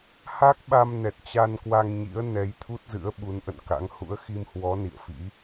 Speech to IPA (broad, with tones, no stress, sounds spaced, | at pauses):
h a˦˥ k̚ ɓ a˧ m n ɛ˨˩ t̚ t͡ɕ a˧ n k w a˧ ŋ ɲ ḭ˧˥ ə̯ n ɛ˨˦ j t̪ʰ u˦˥ t̚ z ɨ̰˧˥ ə̯ ɓ u˨˦ n ʔ ə̰˧˨ n k a̰˧˥ ŋ h ṵ˧˥ ə̯ x i˧ m h w ɔ˨˦ n ḭ˧˨ ə̯ f ḭ˧˥